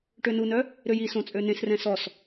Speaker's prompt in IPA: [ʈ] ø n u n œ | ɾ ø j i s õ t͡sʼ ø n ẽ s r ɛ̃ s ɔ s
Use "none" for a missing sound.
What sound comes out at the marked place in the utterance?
ʈ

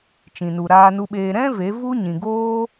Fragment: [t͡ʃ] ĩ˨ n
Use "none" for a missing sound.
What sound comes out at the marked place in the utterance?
t͡ʃ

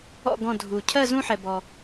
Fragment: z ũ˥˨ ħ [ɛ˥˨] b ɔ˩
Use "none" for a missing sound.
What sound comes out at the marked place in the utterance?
ɛ˩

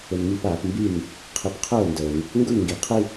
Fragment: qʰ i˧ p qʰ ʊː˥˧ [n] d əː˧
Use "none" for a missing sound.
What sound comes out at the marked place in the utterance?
n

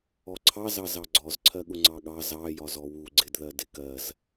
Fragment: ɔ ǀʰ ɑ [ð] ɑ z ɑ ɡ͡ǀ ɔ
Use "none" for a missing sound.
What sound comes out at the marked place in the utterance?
z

